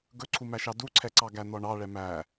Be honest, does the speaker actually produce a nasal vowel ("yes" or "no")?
no